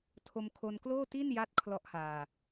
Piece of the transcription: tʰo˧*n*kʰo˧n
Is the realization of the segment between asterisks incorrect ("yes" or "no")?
yes